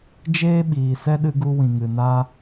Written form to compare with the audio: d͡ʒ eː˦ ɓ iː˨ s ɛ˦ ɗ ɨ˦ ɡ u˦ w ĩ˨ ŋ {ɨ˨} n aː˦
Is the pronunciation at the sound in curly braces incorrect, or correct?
correct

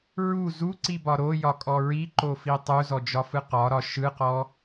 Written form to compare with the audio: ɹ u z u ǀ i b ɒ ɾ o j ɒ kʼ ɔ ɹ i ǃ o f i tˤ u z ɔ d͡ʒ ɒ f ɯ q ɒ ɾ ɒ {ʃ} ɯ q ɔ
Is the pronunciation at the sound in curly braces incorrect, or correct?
correct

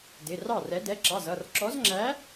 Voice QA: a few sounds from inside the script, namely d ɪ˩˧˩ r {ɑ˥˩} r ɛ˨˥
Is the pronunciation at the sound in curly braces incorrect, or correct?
correct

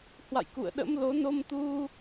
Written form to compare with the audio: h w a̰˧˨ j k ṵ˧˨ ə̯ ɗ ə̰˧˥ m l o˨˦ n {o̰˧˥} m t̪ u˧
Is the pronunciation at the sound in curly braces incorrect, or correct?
incorrect: o˧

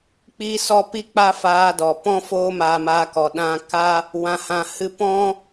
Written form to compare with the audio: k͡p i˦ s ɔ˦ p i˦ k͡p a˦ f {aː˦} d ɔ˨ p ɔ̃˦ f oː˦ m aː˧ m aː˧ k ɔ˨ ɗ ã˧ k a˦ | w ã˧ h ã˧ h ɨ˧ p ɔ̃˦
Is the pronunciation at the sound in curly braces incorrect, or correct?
incorrect: aː˧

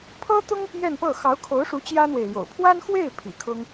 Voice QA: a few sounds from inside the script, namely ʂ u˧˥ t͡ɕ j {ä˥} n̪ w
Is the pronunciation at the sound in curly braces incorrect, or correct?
correct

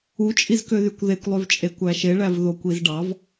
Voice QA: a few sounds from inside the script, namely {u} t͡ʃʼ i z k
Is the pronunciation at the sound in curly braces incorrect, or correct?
correct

